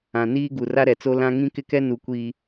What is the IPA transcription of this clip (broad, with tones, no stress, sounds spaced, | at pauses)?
ã˨ n iː˦ ɡ u˨ r a˦ ɾ ɛ˨ t͡s o˦ l ã˦ ŋ ĩ˦ k ɪ˦ k ɛ˦ n u˨ kʷ iː˨